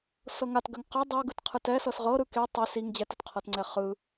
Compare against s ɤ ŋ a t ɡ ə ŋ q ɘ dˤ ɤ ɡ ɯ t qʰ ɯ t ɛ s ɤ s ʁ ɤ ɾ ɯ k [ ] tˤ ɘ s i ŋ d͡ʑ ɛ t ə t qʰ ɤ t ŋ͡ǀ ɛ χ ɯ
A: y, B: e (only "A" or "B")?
B